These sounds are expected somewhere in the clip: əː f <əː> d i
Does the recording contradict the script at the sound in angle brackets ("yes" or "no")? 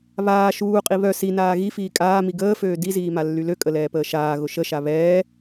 yes